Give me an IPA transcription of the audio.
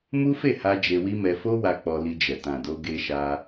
m u˦ f e˦˨ h a˧ d͡ʒ e˧ w i˦ m ɛ˧ f o˦ w a˧ k͡p ɔ˧ l i˧ d͡ʒ ɛ˨ t ã˨ d o˧ ɡ e˧ ʃ a˧

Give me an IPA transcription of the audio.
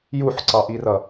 j u ħ ǀ ɑ ʔ i r ʌ

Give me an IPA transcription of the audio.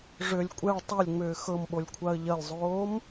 ʐ ʏ lʲ kʷʼ ɛ ɭ tˤ ɛ lʲ ŋ͡m ʏː x ɤ m ɓ o lʲ kʷʰ a ə̯ ʎ ɐ lʲ zˤ oː m

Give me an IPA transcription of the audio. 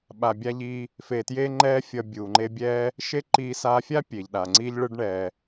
ɓ a˧ bʲ a˥ ʎ iː˥ | f e˧ t j e˥ ŋ͡ǃ ɛː˥ fʲ ʌ˧ bʲ uː˩ ŋ͡ǃ e˧ bʲ ɛː˧ | ʃ e˥ ǃ iː˧ s aː˧ fʲ a˥ pʲ eː˩ ʎ ɗ a˩ ŋ͡ǀ iː˧ ʎ ɭ ɯ˧ ɖ ɳ ɛ˩

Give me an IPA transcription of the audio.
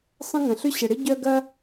sˤ ə̃˥ ŋ ɐ̃˩ ɬ ʏ˥ ɕ ə˩ ɽ ɪ˥ ɟ œ˥ ɡ ɐ˥

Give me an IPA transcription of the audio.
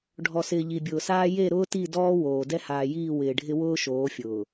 ɖʱ ɔ˨ s ɪː˨ ʎ i˨ bʲ ʊː˨ s aː˦ j e˦˨ ɾ ʊː˦ t i˦˨ d ɔː˦ w oː˨ d ɛ˦ h aː˨ j iː˦˨ w ɪː˨ ɖʱ ɪ˦ w ʊː˦ ʃ oː˨˦ fʲ ʊː˨

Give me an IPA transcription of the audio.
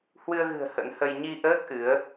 h w ɨ˧ ə̯ ɣ ɨ̤˨˩ ə̯ h ə̰˧˥ n h ə˧ j ɲ i˧ ʔ əː˦˥ k̚ ʔ ɨ˨˦ ə̯

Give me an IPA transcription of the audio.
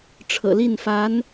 ʈ͡ʂʰ ɤ̰˨˩ l i˥˩ n f a˧˥ n

